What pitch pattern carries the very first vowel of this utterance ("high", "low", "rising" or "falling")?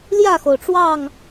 falling